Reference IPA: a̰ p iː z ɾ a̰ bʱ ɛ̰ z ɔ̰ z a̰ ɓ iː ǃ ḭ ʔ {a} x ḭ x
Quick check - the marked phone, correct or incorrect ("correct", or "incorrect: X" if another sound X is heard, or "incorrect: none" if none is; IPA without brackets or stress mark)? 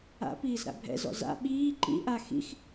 correct